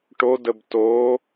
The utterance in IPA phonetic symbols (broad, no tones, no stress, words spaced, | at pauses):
ʈodəb to